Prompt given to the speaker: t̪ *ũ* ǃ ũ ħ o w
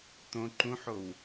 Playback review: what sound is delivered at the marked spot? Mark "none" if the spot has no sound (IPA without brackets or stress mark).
õ